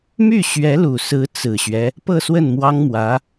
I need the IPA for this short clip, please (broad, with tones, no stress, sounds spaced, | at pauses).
m y˥˩ ɕ ɥ ɛ˧˥ l u˨˩ s ɹ̩˧˥ t͡s ɹ̩˨˩ ɕ ɥ ɛ˦ | p ɤ˥˧ s w ə˥˩ n m w ɑ˥ ŋ m w ä˧˥